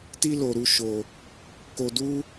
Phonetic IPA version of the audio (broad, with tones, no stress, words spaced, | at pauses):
ti˦lo˧ ɾu˦ʃo˧ | ko˧du˦